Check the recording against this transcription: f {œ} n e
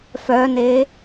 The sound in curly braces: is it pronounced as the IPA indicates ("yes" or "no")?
yes